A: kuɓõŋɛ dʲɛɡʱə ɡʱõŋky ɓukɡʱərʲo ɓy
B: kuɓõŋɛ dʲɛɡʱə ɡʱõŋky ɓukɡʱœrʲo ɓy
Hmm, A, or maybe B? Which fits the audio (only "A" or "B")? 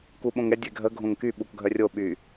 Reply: B